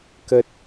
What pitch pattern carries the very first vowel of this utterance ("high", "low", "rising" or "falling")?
low